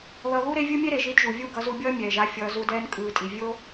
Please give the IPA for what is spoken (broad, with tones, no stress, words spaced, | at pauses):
ðʌ˧ ɣu˦ɾe˦vʲɯ˦mʲe˦ ɾe˨ʒi˧dʒu˨ vʲu˦˨ɡʌ˧zu˧bʲʌː˦ mʲɛː˨ʒ a˦fʲʌː˧ zu˧dɛː˧n kʼɯː˨tʼi˨ vʲo˦